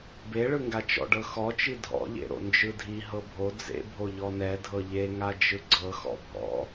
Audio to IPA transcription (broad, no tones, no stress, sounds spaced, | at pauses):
b e ɭ ɯ ŋ ɡ a t͡ʃ ɔ̰ ɖ ɤ x ɔ t͡ʃ i dʱ ɔ̰ ʎ ḛ ɾ o̰ n d͡ʒ ɯ dʱ i ɦ ɤ bʱ o d͡z ḛ bʱ o ʎ ɔ n ɛ dʱ ɤ ʎ e ŋ a d͡ʒ ɯ ɡ͡ǀ ɤ x ɔ̰ bʱ ɔ̰